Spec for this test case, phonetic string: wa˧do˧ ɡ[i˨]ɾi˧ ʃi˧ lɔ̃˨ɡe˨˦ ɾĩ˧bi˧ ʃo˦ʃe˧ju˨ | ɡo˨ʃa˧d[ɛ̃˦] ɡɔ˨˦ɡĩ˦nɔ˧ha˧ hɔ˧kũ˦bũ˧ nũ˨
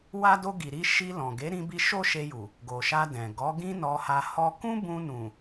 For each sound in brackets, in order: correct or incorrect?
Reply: correct, incorrect: ɛ̃˨

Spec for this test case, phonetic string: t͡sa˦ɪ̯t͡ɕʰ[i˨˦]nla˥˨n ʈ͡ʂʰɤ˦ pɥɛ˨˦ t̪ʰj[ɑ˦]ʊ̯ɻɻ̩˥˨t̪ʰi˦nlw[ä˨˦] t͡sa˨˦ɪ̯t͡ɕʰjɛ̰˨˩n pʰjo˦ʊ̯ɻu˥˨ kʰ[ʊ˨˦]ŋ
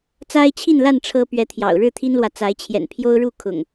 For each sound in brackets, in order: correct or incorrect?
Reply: incorrect: i˥˨, incorrect: ɑ̰˨˩, incorrect: ä˨, incorrect: ʊ̰˨˩

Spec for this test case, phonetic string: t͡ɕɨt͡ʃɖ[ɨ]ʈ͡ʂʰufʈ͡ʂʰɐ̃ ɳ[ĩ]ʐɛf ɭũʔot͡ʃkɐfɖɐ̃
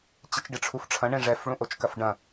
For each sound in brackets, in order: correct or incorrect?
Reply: correct, incorrect: ẽ

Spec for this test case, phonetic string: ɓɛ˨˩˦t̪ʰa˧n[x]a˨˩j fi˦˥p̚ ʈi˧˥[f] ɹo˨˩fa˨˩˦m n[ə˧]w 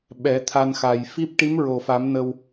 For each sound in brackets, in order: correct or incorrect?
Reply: correct, incorrect: m, correct

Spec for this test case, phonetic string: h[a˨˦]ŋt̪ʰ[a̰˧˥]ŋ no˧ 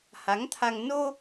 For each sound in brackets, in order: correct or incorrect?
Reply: correct, incorrect: a˧

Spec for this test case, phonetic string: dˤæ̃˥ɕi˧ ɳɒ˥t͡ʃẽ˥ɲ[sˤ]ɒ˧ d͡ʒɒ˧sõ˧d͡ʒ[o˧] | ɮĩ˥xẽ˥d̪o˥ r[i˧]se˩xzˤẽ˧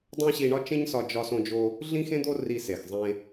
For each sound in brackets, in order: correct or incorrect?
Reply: incorrect: s, correct, correct

